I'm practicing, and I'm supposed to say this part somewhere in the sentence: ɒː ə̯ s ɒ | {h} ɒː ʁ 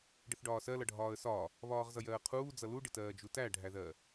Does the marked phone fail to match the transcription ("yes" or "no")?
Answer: yes